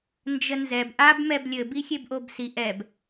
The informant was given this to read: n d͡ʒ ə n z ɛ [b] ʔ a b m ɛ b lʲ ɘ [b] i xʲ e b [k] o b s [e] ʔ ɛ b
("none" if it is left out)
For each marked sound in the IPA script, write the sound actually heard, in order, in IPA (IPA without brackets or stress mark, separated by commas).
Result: b, b, ʔ, i